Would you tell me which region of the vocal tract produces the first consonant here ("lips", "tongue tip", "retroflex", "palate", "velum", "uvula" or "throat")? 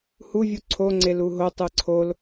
throat